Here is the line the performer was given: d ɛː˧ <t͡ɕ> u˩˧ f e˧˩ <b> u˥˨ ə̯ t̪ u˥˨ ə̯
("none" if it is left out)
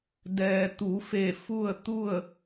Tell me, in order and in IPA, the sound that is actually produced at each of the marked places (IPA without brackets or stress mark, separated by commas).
t̪, f